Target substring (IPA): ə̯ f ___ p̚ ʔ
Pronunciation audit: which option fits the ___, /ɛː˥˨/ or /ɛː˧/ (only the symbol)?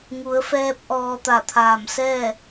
ɛː˧